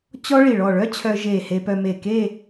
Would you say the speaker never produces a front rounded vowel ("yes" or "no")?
no